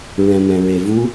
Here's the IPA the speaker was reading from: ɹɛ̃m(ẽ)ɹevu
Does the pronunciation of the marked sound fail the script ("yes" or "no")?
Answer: yes